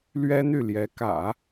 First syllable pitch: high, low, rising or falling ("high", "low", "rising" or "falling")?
high